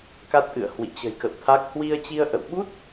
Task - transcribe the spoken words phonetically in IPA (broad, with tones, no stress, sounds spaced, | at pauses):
k a˦˥ t̚ ʔ ɨ̰˧˨ ə̯ h w ḭ˧˨ t͡ɕ ə̤˨˩ j k ə̰˧˨ w t̪ʰ a˦˥ k̚ h w i˧ ə̯ t͡ɕ i˧ ə̯ ʔ ə̰˧˨ w ɓ u˦˥ t̚